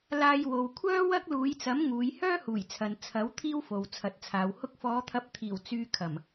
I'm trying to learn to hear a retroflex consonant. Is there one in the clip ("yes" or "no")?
no